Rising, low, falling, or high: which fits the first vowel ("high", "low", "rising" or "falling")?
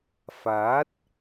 rising